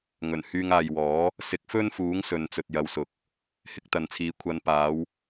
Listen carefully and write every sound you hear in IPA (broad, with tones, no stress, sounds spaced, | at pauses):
ŋ ɵ˨˩ n h yː˧ ŋ aː˨ j w ɔː˨˥ | s ɪ˨˥ k̚ f ɵ˥ n f uː˨˥ ŋ s ɵ˨ n t͡s ɵ˨ t̚ j ɐ˨˧ w s ʊ˨˥ k̚ | h ɪ˧ k̚ t̪ ɐ˨ n t͡sʰ iː˨˥ kʷʰ ɐ˨˧ n p aː˨˧ w